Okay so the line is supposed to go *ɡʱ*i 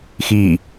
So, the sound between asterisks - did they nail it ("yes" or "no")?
no